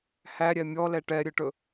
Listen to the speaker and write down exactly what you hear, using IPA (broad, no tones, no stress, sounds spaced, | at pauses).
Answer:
h æ ɾʲ ɛ mʲ ɔ l ɛ ʈ ɛ ɾʲ ɵ ʈ ɵ